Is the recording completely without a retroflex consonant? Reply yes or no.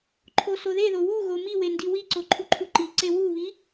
yes